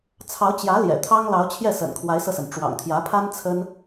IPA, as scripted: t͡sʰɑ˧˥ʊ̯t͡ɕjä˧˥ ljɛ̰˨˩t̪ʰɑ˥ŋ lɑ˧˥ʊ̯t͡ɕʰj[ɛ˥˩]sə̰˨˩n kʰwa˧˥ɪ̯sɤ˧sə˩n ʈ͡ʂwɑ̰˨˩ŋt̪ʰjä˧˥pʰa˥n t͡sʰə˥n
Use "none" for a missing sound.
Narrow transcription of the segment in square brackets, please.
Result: ɛ˥˩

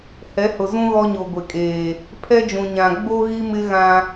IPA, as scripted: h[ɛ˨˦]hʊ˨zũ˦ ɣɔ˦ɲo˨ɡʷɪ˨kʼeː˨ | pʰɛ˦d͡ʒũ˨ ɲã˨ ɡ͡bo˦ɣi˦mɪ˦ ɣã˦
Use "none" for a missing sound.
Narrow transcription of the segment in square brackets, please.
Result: ɛ˨˦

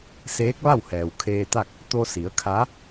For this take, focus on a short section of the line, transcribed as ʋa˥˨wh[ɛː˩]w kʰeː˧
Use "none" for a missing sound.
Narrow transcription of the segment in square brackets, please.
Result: ɛː˩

